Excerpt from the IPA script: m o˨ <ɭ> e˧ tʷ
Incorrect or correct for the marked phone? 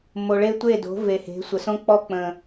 correct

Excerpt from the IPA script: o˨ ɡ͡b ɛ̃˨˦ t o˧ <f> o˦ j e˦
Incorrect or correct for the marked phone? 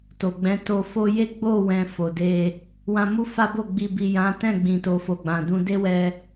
correct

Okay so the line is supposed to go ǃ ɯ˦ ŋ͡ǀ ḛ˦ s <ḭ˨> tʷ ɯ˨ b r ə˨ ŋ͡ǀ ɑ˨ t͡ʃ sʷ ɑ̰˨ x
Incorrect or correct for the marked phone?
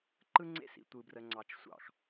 correct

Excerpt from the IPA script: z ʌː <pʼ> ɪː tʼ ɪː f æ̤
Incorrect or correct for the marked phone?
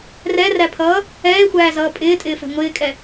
correct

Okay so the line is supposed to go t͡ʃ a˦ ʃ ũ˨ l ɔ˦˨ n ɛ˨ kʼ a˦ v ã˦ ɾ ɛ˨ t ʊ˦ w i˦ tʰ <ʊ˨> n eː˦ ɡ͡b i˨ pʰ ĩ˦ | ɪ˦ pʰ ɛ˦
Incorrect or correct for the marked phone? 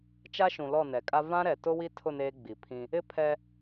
incorrect: ʊ˦˨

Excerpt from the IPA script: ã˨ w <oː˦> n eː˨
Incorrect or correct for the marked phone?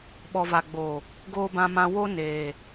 incorrect: o˦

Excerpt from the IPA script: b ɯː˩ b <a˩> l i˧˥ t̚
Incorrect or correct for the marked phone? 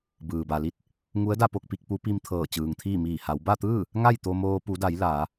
correct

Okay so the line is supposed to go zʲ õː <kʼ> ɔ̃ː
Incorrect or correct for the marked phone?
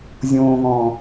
incorrect: ŋ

